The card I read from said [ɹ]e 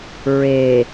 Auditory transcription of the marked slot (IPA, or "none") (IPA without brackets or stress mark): ɹ